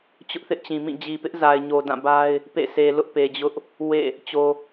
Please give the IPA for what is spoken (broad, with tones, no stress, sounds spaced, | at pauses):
t͡ɕ ʊ˦ ʔ θ ɪ˦ ʔ t͡ɕ ĩ˨ m ĩ˦˨ d͡ʑ i˨ p ɪ˦ ʔ z a˨ ɪ̯ ɲ o˨ d ã˦˨ b a˦ ɪ̯ | p ḛ˦˨ sʰ e˨ l ʊ˦ ʔ p e˨ d͡ʑ ʊ˦ ʔ | w ḛ˦˨ | t͡ɕ o˨